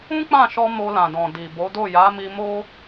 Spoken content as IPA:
ũ˦ k͡p ã˦˨ ʃ ɔ˧ m o˧ l ã˨ d ɔ̃˨ d i˨ b o˨˦ d o˦˨ j a˨˦ m i˧ m o˦

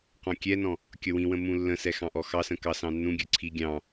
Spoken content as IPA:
q ɔ̃ kʲ ɛ n ɔ̃ | kʲ ʌ w ĩ w ə̃ m ũ lː ə̃ s ɛ x ɑ̃ ʔ ɔ x ɑ s ə̃ k ɑ s ɑ̃ nː ũ ɡʲ ə˞ ǀʰ i ɡʲ ɑ̃

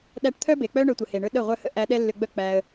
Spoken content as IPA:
ɗ æ˧ ʈ t̪ʰ œ˦ b e˨ k͡p œ˦ ɳ œ˧ tʷ ə˨ h e˨ ɳ ɵ˦ ɗ ə˦˨ ʁʷ œ˦ h ə̰˦ ʔ æ˦ ɗ ɛ˦ lː ʏ˧ ɡ͡b œ˦ k͡p æ˧ ə̯

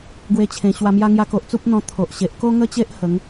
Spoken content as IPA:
ɡ w e˧ t͡ɕʰ ẽ˨˩ ɕ w a˧ m j a˦ ŋ j a˧ k o˨ ʔ t͡s u˦ p̚ n̪ ɔ̃˧ t̪ʰ o˨ ʔ ɕ e˨ ʔ k o˦ ŋ ə˥˧ t͡ɕ e˦ ʔ h ə˨˦ ŋ

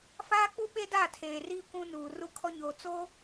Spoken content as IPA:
f aː˦ k͡p u˦ ɓ e˦ d a˦˨ tʰ eː˨ r iː˦ kʷ ũ˦ n uː˨ r u˦ kʰ ɔ˦ ɲ oː˨ t͡s oː˦

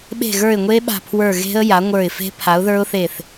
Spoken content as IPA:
ɓ e̤˦˨ ɣ ə˞˦˨ ɪ̯ ŋʷ e˦˥ ɓ a̤˦˨ pʰ w ə˞˦˨ ɣ e̤˦˥ ə̯ j a˨˥ ŋʷ ə˞˦˨ ɪ̯ f e̤˦˥ pʰ a˨˥ ʊ̯ ð ə˞˦˥ ʊ̯ θ e˦˨ θ

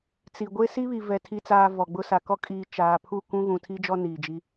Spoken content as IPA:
t͡s i˨ ɡʷ e˦ s i˦ β i˨ v ɛ˨ tʰ i˨ t͡s aː˨ v ɔ˨ ɡ͡b ʊ˦ s a˨ k ɔ˦ kʼ iː˦ t͡ʃ aː˨ pʰ u˦˨ k ũ˦ ɣ ũ˨ tʰ i˦ d͡ʒ ɔ˦ n iː˨ d͡ʒ i˦

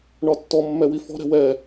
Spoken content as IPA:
ɳ ɒ tː ɔ mː ɛ w i f ɔ̤ ɾ ɛ̤ w ɛ

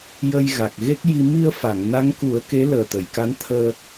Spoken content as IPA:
j ə˧ j ɣ a˨˩ k̚ ɣ e˦˥ k̚ j i˧ m i˧ ə̯ f a˨˩˨ ŋ n a˧˥ ŋ k u˨˩˦ ə̯ k e˧˥ l əː˨˩ t̪ ə˨˩˨ j k a˧˥ n t̪ʰ əː˧

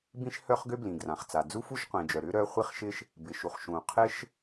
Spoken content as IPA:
b ĩ˥ ʃ h œ˥ χ ɡ ʏ˥ b l ĩ˩ ɡ r ã˩ χ t͡s a˩ d͡z u˥ f u˥ ʃ qʷ ĩ˩ d͡ʒ œ˩ ɾ ʏ˥ ɾ œ˥ χʷ i˥ χ ʃ ɪ˥ ʃ | b ɪ˩ ʃ u˩ χ ʃ ũ˩ qʰ ɪ˥ ʃ

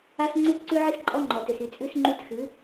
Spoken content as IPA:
a˦ s ŋ͡ǀ ʉ˦ t ǀ ʉ˦ ʕ i˦ s ǃʼ ɔ˦ ŋ͡ǃ ɔ˨ t ø˨ s y˨ t͡sʼ ʉ˦ s ŋ͡ǃ y˦ t x ʉ˨˦

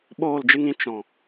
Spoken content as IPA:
ɓ oː˦˨ l d͡ʒ ɨ˦ ŋ ĩ˧ t͡ʃ ɔ̃˨

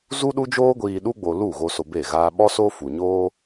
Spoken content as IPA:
z u˦ ɗ u˦ d͡ʒ oː˦ ɡʷ iː˧ ɗ u˦ ɡ͡b o˧ l u˦˨ ɣ o˧ s o˧ b e˦˨ ɣ aː˦ ɓ ɔ˦ s o˦ f u˨ ɲ oː˦

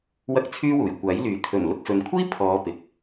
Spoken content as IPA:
w ɐ˥ k̚ t͡sʰ yː˥ w uː˨˩ j kʷ aː˨˥ j l yː˨˥ t̪ʰ ɵ˨˩ n l ʊ˧ k̚ f ɵ˨˧ n kʷʰ iː˥ pʰ ɔː˨˧ p ɪ˨ k̚

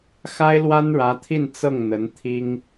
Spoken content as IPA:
x a˥ ɪ̯ l w a˥ n ɻ ä˧˥ t̪ʰ i˥˧ n t͡s ɤ˥˩ ŋ n̪ ə˧˥ n t̪ʰ i˥ ŋ

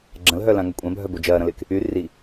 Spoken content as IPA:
ɡ͡ǁ ɐ̃ l ɦ œ l ã ŋ ɐ kʷʼ ã bʱ œ b o d͡ʒ ɐː ɾ ɐ̃ l ɪː k | y r i

